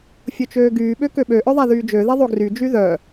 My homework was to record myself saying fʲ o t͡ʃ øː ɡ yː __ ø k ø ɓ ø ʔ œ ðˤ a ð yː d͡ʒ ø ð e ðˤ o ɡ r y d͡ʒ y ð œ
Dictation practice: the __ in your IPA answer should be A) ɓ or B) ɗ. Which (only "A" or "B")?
A